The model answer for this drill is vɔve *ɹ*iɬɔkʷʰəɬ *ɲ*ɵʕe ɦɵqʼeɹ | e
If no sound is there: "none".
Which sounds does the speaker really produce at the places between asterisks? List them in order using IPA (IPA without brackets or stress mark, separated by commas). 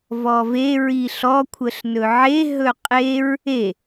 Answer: ɹ, n